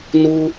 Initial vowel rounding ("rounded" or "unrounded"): rounded